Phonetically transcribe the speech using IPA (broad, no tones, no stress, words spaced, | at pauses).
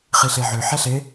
χiɬeʕø ħɛɬe